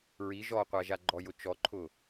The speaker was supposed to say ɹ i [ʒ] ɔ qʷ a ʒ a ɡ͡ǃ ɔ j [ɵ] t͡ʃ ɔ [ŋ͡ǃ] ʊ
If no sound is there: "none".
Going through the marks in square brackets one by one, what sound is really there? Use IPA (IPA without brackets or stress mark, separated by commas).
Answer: ʒ, ʊ, ǃʰ